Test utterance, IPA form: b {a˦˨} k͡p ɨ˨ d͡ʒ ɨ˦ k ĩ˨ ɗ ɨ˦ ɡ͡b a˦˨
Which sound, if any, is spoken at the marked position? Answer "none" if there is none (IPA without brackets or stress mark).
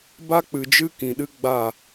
a˦